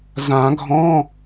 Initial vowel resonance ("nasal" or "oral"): nasal